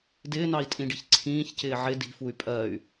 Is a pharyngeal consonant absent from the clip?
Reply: no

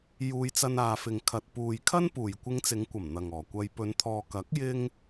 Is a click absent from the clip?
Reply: yes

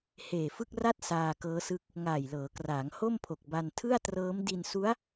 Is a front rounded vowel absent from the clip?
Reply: yes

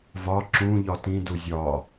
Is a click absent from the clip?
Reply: no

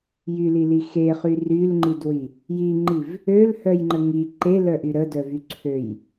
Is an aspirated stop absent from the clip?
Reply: no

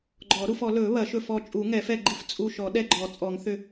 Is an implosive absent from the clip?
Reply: no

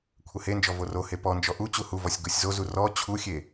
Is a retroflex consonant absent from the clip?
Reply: yes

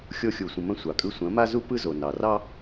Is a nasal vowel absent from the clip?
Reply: no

